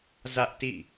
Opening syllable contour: high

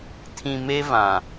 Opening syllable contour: low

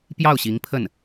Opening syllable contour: falling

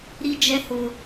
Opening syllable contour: high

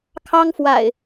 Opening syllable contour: high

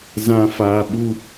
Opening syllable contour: low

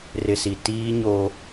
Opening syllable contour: low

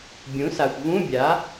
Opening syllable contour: rising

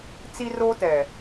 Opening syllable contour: high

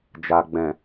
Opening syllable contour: low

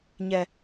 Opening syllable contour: low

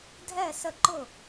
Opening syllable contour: falling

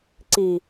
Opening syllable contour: low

